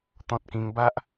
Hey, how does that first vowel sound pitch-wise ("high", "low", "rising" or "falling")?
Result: high